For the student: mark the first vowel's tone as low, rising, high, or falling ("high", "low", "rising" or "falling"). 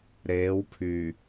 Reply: rising